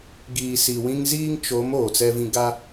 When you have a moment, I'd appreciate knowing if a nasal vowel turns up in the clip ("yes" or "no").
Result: yes